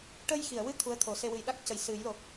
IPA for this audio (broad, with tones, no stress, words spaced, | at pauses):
ʈə˧jxi˨˩˨ə̯wɨ˧ t̪ʰu˧˥ə̯t̪ʰo˨˩˦se˧ wɨ˨˩jɗa˦˥k̚cə˨˩j sɨ˨˩˦jlo˨˩k̚